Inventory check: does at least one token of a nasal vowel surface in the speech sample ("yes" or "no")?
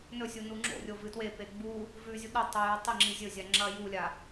no